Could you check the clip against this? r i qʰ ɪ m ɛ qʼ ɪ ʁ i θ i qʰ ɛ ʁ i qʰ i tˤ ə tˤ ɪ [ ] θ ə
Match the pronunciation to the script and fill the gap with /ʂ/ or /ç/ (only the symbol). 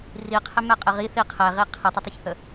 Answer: ç